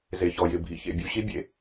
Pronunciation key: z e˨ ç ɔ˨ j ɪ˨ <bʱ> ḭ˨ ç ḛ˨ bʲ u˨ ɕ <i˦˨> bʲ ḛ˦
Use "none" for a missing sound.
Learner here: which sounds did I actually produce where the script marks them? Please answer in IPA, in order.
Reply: bʱ, i˦

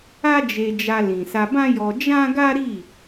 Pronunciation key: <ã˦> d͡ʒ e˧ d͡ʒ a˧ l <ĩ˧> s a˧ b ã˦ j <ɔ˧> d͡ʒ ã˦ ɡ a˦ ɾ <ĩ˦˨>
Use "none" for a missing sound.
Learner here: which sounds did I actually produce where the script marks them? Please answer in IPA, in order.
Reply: a˦, ĩ˨, ɔ˧, i˦˨

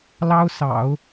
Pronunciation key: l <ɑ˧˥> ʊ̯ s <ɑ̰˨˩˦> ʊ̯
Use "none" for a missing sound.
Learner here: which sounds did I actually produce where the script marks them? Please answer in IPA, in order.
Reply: ɑ˥, ɑ̰˨˩˦

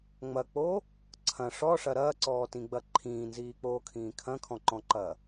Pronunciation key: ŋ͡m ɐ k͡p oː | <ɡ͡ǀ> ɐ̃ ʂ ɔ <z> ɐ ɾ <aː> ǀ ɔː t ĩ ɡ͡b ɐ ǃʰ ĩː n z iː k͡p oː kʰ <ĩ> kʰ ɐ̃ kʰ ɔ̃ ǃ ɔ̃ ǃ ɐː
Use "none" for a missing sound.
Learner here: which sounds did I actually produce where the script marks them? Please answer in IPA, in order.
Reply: ǀʰ, ʂ, ɐː, ĩː

